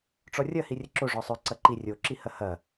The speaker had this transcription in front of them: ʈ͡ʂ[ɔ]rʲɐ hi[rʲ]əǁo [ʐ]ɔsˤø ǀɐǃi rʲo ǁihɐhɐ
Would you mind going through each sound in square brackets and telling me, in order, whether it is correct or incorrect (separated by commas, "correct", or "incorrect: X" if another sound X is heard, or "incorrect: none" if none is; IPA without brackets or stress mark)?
correct, correct, correct